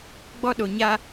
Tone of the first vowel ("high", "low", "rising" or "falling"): high